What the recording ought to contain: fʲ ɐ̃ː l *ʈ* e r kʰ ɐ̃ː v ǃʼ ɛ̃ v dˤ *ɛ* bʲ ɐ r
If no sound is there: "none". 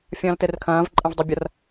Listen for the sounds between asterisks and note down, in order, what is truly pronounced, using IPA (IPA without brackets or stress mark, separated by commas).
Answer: t, ɛ